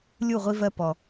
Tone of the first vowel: falling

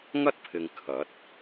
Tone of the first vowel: high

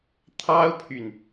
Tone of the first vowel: high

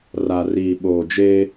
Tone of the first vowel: low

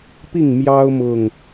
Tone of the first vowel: falling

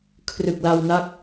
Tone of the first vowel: low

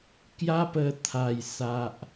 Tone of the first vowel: high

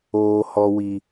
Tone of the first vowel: low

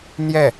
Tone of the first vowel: falling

